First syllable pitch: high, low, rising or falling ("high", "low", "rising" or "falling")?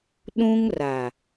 high